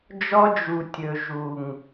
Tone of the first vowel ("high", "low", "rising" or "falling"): high